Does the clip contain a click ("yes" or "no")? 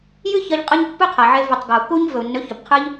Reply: no